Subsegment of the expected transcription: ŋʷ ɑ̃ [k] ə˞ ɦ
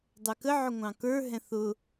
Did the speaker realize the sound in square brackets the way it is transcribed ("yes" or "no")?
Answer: yes